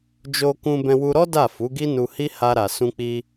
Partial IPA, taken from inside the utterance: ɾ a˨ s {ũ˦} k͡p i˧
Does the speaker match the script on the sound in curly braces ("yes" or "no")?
no